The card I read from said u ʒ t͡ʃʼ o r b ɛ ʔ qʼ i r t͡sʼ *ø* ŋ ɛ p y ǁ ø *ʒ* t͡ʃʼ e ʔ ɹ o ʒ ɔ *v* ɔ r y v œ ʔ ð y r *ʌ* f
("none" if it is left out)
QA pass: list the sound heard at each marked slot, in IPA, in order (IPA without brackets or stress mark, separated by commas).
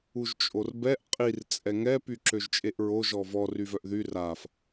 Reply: ɛ, ʒ, v, a